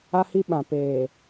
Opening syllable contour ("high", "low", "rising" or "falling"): high